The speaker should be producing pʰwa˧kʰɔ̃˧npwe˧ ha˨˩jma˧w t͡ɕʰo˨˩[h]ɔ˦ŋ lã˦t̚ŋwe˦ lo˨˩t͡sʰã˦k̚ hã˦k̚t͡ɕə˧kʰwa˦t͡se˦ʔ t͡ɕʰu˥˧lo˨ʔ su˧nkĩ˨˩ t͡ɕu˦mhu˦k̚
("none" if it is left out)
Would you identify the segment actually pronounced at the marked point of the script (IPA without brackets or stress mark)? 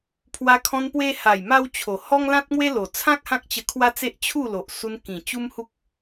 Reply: h